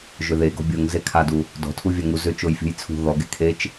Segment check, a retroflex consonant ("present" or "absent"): absent